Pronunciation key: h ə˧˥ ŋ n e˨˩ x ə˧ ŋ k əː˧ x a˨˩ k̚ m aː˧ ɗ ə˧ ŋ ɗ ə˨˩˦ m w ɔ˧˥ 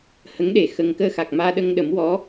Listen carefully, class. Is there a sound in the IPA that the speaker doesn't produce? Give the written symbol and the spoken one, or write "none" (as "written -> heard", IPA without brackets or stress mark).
n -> ɗ